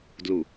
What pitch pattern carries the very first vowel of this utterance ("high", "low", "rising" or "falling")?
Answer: low